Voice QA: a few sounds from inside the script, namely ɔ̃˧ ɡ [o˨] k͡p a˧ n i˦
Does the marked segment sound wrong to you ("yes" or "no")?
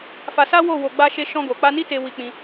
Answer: no